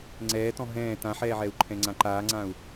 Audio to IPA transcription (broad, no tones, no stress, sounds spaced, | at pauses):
ŋ͡ǀ ɛː t ɔ̃ ɦ ɛ̃ː t ã ħ ɛː ʕ ɛ u̯ ǃʰ ɛ̃ ŋ͡ǀ ã ǃ aː ŋ͡ǀ ã u̯